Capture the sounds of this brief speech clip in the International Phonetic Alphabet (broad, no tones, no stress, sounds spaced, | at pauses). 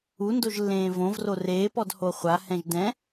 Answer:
u n d o ʒ lː ẽː v õ v r o r eː p ɔ d h o χʷ a h ɛ̃ ʒ d ɛ̃